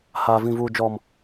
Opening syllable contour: high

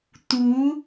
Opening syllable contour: rising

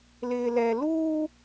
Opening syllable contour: low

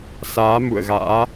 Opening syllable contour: rising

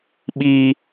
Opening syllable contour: high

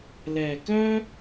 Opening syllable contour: low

